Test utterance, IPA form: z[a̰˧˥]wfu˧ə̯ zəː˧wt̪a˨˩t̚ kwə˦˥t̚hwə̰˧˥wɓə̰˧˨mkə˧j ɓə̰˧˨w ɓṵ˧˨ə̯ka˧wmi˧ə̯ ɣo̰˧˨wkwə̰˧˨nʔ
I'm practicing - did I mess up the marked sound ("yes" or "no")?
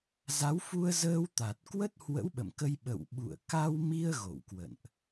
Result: yes